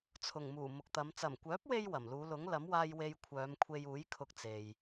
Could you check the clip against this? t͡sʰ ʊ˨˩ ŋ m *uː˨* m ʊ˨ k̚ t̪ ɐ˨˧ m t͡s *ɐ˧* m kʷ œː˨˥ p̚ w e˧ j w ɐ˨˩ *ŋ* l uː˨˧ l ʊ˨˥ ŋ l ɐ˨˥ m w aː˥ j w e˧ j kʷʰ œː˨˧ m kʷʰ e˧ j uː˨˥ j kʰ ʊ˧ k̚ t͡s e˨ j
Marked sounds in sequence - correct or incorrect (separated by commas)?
incorrect, incorrect, incorrect